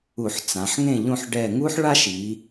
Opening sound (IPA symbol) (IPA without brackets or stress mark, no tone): u